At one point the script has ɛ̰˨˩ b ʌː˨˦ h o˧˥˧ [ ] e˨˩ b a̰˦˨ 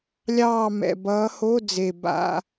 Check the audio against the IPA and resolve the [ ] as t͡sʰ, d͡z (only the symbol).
d͡z